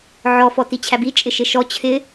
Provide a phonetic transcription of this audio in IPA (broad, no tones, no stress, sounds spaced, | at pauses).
ʕ ɔ f ɔ t i t͡ɕʰ æ b i t͡ʃʼ ɪ ʃ ɪ ʃ ɔ t͡ɕʰ ɪ